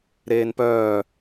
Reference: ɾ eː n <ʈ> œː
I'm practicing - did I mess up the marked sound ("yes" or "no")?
yes